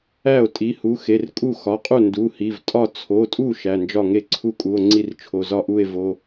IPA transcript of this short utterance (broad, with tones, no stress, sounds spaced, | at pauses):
æ˥˩ o̯ tʼ i˩˧˩ h u˩˧˩ x e˩˧˩ r kʼ u˥˩ x ɒ˩˧˩ qʼ u˥˩ n d u˩˧˩ h i˩˧˩ v tʼ ɒ˥˩ t͡sʰ o˩˧˩ tʼ u˥˩ ʃ æ˩˧˩ n d͡ʒ ɒ˥˩ ŋ e˥˩ ǀʰ u˥˩ kʼ u˩˧˩ o̯ ŋ͡ǀ i˥˩ r t͡ʃʰ o˩˧˩ z ɒ˥˩ ʔ u˥˩ e̯ v o˩˧˩